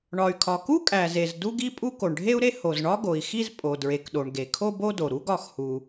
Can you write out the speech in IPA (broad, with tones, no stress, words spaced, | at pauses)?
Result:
ɳɒ˩y̯kʰɒ˩ku˥ kʼæ˩ze˩z du˥ɡi˥pʼu˥ ko˩ɳɖʱe˥u̯ɾe˥ ho˩zɳɒ˥ ɡo˩i̯xi˥z pʼo˩dɹe˩kɗo˩ɳ ɡe˩kʰo˥bo˥do˩ ɾu˥ɡɒ˩xhu˩